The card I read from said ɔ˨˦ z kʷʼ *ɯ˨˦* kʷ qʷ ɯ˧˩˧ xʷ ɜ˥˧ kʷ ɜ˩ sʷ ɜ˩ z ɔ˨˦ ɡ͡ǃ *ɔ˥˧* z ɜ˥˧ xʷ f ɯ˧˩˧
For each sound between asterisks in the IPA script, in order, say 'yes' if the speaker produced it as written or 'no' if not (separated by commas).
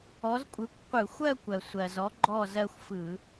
yes, yes